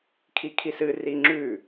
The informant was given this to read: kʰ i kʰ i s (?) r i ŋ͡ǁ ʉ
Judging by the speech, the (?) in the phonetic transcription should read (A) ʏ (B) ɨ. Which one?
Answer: B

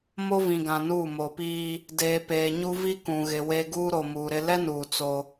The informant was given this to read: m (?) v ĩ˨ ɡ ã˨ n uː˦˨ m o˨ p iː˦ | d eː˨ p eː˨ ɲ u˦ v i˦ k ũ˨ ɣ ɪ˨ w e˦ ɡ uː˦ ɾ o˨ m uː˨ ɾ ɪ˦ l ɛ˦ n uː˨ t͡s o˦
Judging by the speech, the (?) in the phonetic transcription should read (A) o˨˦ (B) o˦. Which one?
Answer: B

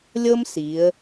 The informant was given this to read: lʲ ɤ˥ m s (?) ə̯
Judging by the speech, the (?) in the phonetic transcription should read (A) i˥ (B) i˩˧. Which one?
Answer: B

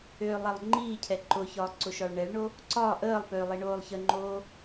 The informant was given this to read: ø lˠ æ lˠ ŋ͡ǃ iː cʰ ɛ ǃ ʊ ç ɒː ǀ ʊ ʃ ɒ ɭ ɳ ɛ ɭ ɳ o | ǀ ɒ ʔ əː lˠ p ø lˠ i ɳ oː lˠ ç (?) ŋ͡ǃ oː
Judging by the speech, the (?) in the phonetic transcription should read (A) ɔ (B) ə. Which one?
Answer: B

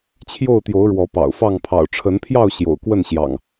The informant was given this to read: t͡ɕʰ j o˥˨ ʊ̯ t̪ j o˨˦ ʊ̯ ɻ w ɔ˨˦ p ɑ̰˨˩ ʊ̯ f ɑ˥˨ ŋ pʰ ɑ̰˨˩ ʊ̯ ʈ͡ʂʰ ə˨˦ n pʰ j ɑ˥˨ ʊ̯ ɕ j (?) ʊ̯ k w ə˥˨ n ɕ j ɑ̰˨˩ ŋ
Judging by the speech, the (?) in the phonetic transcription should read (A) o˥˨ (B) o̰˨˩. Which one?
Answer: B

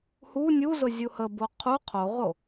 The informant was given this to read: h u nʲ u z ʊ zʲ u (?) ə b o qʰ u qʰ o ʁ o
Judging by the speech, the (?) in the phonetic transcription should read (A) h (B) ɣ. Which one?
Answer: A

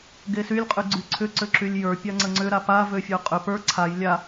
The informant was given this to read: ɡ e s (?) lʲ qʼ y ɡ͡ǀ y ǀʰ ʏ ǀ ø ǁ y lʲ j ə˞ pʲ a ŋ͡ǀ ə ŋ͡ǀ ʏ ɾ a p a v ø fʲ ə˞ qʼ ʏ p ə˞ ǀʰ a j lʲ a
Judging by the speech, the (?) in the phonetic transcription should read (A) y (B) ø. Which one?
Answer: A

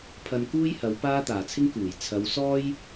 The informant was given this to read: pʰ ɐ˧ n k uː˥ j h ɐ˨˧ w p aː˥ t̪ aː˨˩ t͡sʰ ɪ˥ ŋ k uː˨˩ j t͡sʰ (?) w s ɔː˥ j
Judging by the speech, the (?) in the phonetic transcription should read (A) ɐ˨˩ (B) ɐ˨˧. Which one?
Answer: B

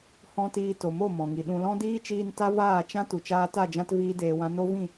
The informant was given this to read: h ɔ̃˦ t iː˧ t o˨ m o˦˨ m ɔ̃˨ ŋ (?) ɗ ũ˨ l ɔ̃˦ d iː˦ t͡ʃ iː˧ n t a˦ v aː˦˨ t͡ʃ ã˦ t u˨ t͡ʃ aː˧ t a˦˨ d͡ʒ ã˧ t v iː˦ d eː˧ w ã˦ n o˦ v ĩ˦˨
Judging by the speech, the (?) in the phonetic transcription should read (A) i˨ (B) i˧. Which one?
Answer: A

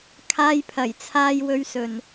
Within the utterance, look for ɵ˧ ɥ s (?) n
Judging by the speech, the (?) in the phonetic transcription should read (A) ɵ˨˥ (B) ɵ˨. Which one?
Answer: B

